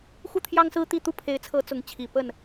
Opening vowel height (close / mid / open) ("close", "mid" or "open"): close